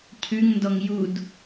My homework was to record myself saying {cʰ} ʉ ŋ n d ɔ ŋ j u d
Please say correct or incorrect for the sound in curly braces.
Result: correct